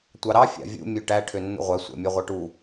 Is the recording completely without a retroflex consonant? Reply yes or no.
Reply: no